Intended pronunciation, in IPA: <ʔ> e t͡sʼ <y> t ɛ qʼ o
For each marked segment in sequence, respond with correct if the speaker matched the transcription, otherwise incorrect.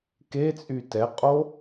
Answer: incorrect, correct

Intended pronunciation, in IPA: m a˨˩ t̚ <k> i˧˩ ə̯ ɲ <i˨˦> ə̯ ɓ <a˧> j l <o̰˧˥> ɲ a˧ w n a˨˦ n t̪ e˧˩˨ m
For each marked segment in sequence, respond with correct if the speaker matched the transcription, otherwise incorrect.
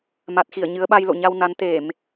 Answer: incorrect, incorrect, correct, incorrect

